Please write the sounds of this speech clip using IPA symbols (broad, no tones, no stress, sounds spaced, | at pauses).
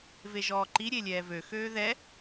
v e ʒ ɔː ǃ i ɾʲ e lʲ ɛː v ø x øː ð ɛ